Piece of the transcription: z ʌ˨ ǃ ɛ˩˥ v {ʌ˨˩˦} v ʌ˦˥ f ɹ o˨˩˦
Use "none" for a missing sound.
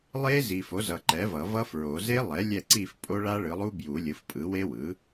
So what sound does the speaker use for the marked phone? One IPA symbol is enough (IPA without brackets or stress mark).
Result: ʌ˨˩˦